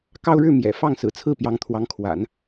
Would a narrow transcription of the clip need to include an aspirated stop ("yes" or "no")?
yes